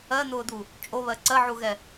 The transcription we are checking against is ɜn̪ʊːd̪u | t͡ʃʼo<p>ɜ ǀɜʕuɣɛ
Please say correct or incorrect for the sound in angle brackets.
incorrect